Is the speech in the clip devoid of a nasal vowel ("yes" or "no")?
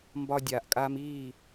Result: yes